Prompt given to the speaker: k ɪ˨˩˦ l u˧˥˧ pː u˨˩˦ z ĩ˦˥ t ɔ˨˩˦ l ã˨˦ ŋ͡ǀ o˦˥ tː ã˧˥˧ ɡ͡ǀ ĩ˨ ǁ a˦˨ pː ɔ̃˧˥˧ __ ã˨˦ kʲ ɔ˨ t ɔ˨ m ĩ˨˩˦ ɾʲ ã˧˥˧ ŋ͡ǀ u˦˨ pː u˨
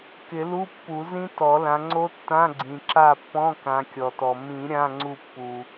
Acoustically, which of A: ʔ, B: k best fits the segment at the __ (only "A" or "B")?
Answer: B